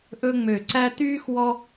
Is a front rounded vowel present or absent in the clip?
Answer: present